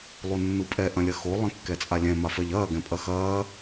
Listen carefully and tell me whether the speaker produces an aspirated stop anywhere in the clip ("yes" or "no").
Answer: no